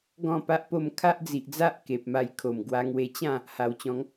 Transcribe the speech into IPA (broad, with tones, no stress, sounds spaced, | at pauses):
ɡ ɔ̃˥˧ p a˦ ʔ p o˥˧ m kʰ a˦ ʔ d͡z i˨ ʔ d͡z a˦ ʔ k e˨ p̚ m a˧ j kʰ o˨˩ m ɡ w a˧ ŋ w e˧ t͡ɕ ã˥˧ | h a˨˩ w t͡ɕ ɔ̃˨˦ ŋ